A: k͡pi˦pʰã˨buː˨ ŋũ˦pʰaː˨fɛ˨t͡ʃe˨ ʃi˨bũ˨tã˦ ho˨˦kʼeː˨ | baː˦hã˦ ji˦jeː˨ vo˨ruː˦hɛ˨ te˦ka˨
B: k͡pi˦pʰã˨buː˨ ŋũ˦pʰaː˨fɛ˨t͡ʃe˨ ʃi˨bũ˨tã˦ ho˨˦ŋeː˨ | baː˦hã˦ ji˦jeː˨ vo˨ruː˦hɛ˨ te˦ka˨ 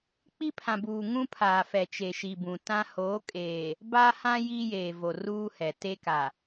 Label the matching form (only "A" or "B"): A